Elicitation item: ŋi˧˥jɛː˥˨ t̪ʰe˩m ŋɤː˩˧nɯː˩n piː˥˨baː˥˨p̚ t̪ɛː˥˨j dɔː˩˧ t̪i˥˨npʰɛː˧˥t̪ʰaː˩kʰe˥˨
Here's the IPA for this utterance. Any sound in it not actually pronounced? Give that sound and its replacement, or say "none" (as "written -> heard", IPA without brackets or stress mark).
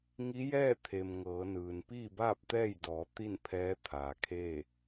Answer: none